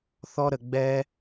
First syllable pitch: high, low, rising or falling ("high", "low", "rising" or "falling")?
high